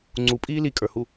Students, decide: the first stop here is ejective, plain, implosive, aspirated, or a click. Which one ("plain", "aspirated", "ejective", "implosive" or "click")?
click